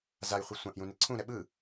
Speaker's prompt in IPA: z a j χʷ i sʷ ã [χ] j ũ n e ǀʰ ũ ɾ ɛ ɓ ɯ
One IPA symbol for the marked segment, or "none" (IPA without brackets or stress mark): ʔ